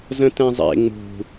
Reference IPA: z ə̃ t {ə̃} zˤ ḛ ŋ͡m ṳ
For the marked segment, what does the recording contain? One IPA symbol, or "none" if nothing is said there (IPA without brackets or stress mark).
ɛ̃